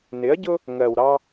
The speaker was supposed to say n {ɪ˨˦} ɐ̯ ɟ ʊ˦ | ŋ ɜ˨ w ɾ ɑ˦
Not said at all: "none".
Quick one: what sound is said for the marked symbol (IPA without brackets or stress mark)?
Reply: ɪ˨˦